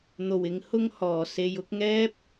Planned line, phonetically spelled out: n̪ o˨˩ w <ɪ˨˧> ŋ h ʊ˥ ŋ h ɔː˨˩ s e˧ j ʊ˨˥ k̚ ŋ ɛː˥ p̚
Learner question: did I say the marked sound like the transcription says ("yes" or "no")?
yes